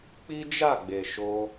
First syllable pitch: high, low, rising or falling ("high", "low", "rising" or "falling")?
high